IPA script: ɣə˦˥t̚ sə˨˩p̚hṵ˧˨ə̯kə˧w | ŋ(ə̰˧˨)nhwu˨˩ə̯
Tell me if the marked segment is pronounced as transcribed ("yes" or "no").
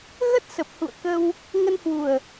no